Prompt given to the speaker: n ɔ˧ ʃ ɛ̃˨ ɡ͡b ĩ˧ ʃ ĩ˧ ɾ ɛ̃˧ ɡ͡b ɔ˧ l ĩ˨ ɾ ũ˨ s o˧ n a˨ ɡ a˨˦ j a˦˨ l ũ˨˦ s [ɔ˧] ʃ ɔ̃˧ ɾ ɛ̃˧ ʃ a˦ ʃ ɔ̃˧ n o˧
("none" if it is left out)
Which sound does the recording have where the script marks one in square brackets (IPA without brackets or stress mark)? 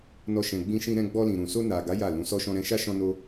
ɔ˧